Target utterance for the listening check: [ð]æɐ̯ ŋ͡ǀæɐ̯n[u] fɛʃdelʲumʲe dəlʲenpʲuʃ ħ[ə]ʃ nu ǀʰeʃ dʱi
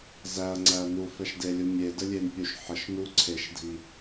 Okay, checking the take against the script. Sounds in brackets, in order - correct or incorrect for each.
incorrect, correct, correct

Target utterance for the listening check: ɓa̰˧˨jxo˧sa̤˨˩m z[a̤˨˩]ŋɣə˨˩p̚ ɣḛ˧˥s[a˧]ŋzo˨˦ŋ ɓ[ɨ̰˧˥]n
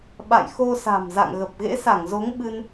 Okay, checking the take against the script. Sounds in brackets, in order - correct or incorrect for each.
incorrect, incorrect, incorrect

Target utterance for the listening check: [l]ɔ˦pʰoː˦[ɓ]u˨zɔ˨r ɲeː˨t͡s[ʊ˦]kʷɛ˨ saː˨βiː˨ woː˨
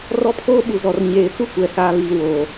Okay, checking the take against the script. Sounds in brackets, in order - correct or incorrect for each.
incorrect, correct, incorrect

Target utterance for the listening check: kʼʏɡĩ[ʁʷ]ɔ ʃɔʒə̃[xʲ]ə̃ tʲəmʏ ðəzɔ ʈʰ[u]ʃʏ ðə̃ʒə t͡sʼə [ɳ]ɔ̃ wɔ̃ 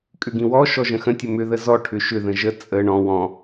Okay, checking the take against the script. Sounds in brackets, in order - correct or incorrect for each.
incorrect, incorrect, incorrect, correct

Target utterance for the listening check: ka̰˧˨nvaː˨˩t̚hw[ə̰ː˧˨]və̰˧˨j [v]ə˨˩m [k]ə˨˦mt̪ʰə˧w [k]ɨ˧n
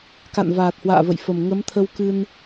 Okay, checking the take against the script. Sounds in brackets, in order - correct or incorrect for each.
incorrect, incorrect, incorrect, correct

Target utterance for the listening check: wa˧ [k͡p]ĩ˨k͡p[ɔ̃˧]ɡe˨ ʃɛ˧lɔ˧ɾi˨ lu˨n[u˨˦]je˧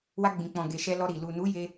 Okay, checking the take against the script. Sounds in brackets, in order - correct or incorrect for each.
incorrect, incorrect, correct

